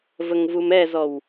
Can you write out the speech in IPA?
v ə ŋ v u m ɛ z ɔ w

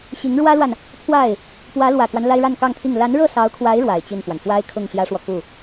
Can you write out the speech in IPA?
ɕ i˧˥ ŋ ɻ w ä˥ l w a˨ n | t̪ʰ w a˥˩ ɪ̯ | p w ä˧˥ l w ä˨˩ k w a˦ n l a˥ ɪ̯ ɻ a˥˧ n k ɑ˥˧ ŋ t̪ʰ i˥˩ ŋ l a˧˥ n ɻ ɤ˥˩ s ɑ˧˥ ʊ̯ kʰ w a˧˥ ɪ̯ ɻ w a˨˩ ɪ̯ t͡ɕ i˥˩ n f w a˩ n f w a˥ ɪ̯ kʰ ʊ˥˩ ŋ ɕ j ä˥ ʂ w ɔ˨ k u˥˩

